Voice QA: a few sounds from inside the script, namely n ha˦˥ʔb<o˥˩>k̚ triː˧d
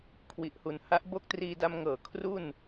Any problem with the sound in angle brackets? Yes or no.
no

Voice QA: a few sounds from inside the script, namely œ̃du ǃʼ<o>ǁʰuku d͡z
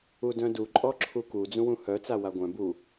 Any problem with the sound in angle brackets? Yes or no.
yes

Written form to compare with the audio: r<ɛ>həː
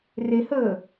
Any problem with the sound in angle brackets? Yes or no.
yes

